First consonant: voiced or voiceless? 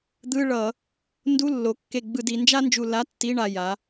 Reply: voiced